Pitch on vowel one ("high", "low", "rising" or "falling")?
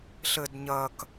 low